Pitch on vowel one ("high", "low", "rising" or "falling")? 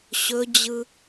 high